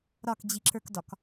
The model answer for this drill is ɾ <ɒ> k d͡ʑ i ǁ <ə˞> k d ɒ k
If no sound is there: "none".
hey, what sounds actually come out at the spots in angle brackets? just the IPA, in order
ɒ, ə˞

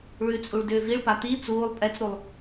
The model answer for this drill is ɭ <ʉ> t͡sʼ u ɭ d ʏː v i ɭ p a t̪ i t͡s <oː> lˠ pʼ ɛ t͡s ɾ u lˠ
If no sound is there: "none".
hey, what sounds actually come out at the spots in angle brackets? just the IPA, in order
ʉ, uː

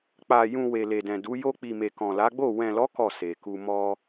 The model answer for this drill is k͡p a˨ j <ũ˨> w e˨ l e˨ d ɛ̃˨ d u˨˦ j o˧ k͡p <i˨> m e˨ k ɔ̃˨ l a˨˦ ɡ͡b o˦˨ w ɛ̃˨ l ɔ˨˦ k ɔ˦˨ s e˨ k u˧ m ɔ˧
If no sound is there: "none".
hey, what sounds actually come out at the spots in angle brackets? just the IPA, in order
ũ˨, i˨

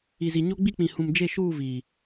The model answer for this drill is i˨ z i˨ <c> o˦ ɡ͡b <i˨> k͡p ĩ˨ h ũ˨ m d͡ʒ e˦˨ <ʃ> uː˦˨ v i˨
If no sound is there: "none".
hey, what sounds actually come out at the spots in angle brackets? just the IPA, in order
ɲ, i˦, ʃ

